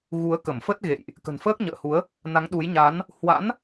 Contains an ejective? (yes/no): no